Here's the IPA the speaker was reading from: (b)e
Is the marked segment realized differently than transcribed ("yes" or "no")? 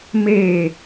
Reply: yes